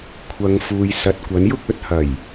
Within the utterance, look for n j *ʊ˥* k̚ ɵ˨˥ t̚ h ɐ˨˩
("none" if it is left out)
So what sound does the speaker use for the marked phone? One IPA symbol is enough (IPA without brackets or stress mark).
ʊ˥